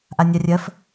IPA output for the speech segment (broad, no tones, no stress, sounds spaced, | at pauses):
ʔ a nʲ a rʲ ɜ f